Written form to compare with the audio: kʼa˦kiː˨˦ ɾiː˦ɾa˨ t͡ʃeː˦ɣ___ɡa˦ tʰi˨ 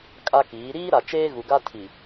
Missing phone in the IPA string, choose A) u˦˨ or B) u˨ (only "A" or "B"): B